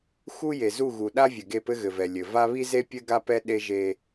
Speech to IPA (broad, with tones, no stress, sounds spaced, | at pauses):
x u˦ j e˨ z u˦˨ ɣ u˨ ɗ a˦ vʲ ɘ˨ ɡ e˦˨ p ɘ˦ ɣ ɘ˨ v ɛ˨ lʲ ɘ˨ v a˦ β i˦ z e˦ pʲ ɘ˦ ɡ a˦ p ɛ˦ ɗ e˦ ʒ e˦